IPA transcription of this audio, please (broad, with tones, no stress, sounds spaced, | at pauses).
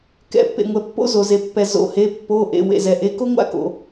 k ɛ̰˩˧˩ pː ḛ˩ ŋʷ ɛ˩ pː o̰˥ z o˩ z e˩ pː ɛ˩ z o̰˩˧˩ h e˩˧˩ pː o˩˧˩ ʔ ḛ˩˧˩ w ḛ˩ z ɛ˩ ʔ e˩˧˩ k o˥ ŋʷ a̰˥ k o̰˩